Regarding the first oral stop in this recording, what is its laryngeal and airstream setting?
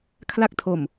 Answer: aspirated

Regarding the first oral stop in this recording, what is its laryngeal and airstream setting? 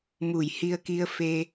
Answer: plain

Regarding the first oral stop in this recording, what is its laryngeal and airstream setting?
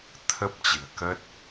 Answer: aspirated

